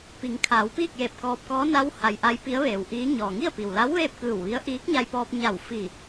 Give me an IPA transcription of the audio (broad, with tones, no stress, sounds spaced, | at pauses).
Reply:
p i˩˧ ŋ kʰ aː˩˧ w p iː˥˨ k̚ j eː˧˩ p̚ k ɔː˧ p̚ k ɔː˧˥ n a˧˥ w h a˩ j ʔ a˧˥ j p i˧˥ ə̯ ʋ eː˩ w ʔ iː˧˥ ɲ ɔː˩ ŋ i˥˨ ə̯ p i˩ w l a˧˥ w ʋ eː˥˨ p̚ k ɯː˧˩ w ʋ i˧˥ ə̯ ʔ iː˧˥ k̚ ɲ a˧ j p ɔː˧ p̚ ɲ a˧˩ w f iː˧˩